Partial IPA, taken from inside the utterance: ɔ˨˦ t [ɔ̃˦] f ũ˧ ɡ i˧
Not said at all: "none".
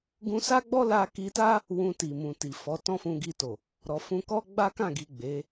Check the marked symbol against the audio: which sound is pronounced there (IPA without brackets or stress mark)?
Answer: ɔ̃˦